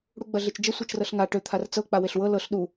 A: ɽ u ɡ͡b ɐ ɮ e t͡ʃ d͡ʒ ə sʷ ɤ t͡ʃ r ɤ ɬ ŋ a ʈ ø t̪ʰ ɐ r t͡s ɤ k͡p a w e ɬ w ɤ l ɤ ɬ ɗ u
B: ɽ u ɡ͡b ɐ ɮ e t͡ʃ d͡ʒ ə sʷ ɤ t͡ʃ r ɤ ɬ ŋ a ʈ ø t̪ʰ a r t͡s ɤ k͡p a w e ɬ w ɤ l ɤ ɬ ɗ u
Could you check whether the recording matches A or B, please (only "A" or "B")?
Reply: B